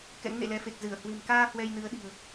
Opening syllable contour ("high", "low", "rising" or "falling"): rising